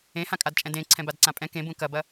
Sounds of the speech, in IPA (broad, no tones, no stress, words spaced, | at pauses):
ẽhãkʼadt͡ʃʼɛ̃ dẽ ǀʰɛ̃badǀãpʼɛ̃ kẽbũ kɐbɐ